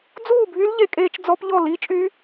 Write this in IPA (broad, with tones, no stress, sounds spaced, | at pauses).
d͡z uː˥˧ bʱ y˦˥ l ʎ e˦˥ kʼ eː˦˥ t͡ʃ d͡z ɔ˦˥ p ʎ ɔ˥˧ l i˦˥ t͡ʃʼ y˦˥